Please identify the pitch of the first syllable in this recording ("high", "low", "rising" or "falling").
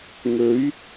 rising